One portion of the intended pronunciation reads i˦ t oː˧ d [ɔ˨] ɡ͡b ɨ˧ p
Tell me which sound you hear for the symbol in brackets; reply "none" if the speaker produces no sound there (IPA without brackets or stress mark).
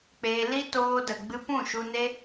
ə˨